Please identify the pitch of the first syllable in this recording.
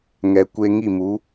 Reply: low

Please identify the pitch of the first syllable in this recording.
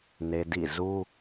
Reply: high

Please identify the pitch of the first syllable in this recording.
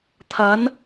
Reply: rising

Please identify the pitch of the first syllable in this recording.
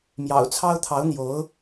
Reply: low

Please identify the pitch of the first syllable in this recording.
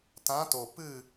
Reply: rising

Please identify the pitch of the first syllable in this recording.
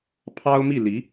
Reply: high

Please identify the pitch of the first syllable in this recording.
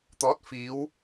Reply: rising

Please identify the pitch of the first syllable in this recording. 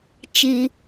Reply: low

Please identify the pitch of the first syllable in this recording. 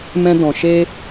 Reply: high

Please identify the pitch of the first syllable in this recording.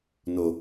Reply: low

